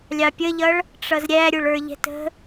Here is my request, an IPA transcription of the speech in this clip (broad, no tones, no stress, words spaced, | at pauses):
lʲɑpʲəʎʌɭ | ʈ͡ʂʌzɾʲæɾʲʊɭə˞ ʎɛ̤tə̤